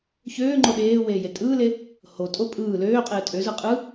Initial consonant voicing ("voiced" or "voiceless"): voiceless